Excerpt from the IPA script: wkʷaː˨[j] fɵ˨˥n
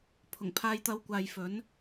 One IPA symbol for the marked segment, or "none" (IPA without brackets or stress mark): j